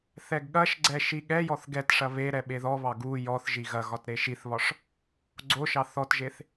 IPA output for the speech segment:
θ ɛ ɡ ɠ ɐ ʃ ɡ͡ǀ ɛ ʃ i ɠ ɛ j ɔ θ ɡ ɛ t ʂ ɐ β e ɾ ɛ ɓ e ð ɔ β ɑ ɡ u j ɔ θ ʒ i ɣ ɐ ɣ ɒ t ɾ e ʃ i θ β ɒ ʂ | ɡ͡ǀ o ʃ ɑ θ ɔ t ʒ e θ

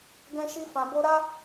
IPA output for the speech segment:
ɡ ɛ̃˦ ʃ i˦ f ã˧ b o˧ ɾ a˦

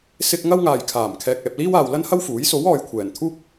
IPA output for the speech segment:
s ɪ˧ k̚ ŋ ɐ˥ w ŋ aː˨ j kʰ aː˨˩ m kʰ ɛː˨ k̚ ɛː˨ p̚ l iː˥ w aː˨ w l ɐ˥ n h ɐ˥ w f uː˨˥ j s o˨˥ w ɔː˨ j kʷʰ ɛː˨˩ n t̪ʰ uː˥ k̚

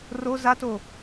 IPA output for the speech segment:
r o z a t o

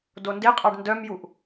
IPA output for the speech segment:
d o n d e qʼ ɑ ɖ n d œ m j u ʔ

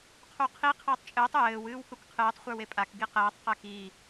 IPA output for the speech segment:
qʰ u qʰ i qʰ ɘː tˤ t͡ʃʼ ɘː tˤ j ɘː w ɨː w k u k qʰ ɨː tˤ χʷ ə˞ w e pʼ a k ɡ i q ɛː tˤ q ɛ k i

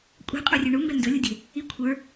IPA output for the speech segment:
kʷʼ ɛ̤ qʼ u rʲ ø ɳ u m b ɛ n d ɵ lʲ u dʲ ɛ̤ | i kʷʰ ə˞

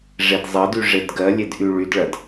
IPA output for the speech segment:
ʐ e d zˤ ɐ d y ʐ e d ɡ ɜ lʲ e d ʔ y ɭ y d ɭ ɐ d

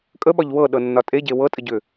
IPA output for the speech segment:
kʼ ə ɓ ɒ ʎ w ɤ ɗ ɤ nː ɒ tʼ e ɟ e w ɤ tʼ ə ɟ ʏ

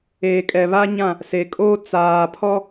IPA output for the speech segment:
eː˨ kʼ ɛ˨ β a˦ ɲ ã˦˨ | s e˨ kʼ oː˦ t͡s aː˨ pʰ ɔ˦

